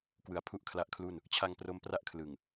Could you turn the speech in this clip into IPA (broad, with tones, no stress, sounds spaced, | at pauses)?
k w ɯ˩˦ a̯ pʰ u˥˩ ʔ kʰ l a˦˥ ʔ kʰ l u˥˩ n | t͡ɕʰ a˧ ŋ p r o˦˥ m p r a˥˩ ʔ kʰ l ɯ˨˩ ŋ